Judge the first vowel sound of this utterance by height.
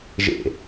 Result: mid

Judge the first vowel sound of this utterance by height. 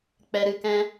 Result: mid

